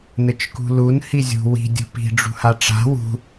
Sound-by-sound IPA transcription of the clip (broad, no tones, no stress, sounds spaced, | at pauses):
n ɘ t͡ʃ k ṳ l u n h i zʲ ṳ w i̤ dʲ ṳ p i̤ ɖ͡ʐ ṳ h a ʈ͡ʂ a̤ w ṳ